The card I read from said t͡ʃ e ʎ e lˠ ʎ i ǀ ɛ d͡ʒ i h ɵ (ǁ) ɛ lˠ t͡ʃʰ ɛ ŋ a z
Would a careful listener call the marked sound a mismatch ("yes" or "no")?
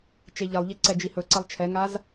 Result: yes